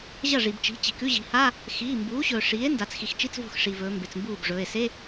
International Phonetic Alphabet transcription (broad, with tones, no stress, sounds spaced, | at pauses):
ʑ ɐ˥˩ ʐ i˩ b t͡ʃ i̤˩˥ t͡ɕ i̤˩˧ k ʉ˧˥˧ ʑ i̤˩˧ h a˧˥˧ | x iː˩˧˩ m b uː˩˥ ɕ ɵː˩ ʂ iː˩˥ e̯ n d a˩˧ t͡s x i˩ x t͡ʃ i˧˥˧ t͡s v o̤˥˩ x ʂ i˩ v ɵː˩˧ m b e˩ t͡s m b uː˥˩ b ʐ ɵː˩˧˩ e̯ s e˧˥˧